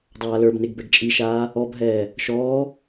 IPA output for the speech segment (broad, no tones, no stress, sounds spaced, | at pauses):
dˤ aː l ə˞ b n e ɡ b ɛ ɡ t͡ʃʼ i ʃ aː | ɔ b ɦ ɛː | ʃ ɔː